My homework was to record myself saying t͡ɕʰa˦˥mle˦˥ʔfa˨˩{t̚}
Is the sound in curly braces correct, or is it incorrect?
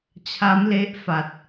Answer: correct